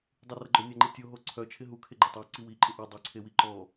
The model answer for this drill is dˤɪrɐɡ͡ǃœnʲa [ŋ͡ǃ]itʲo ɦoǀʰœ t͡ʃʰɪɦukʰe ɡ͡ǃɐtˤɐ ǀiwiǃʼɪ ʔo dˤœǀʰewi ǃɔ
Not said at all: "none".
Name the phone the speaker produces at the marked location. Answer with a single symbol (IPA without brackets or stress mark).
ŋ͡ǃ